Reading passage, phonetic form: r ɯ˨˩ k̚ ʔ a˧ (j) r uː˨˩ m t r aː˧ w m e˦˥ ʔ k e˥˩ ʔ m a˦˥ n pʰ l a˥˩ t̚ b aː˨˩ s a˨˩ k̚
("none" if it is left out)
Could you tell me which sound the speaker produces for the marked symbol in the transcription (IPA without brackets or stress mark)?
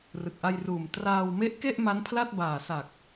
j